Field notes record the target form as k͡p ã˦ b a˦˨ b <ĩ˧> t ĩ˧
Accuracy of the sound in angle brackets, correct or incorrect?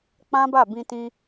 correct